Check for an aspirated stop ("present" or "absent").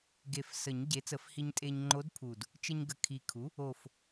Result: present